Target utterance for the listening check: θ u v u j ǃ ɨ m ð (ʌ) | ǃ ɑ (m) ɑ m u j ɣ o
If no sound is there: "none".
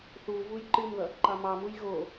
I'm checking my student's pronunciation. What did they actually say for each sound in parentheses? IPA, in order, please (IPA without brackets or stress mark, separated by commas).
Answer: ʌ, m